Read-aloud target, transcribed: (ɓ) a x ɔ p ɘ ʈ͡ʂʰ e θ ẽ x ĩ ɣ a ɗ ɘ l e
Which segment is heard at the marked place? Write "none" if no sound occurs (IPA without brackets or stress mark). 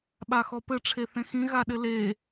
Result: ɓ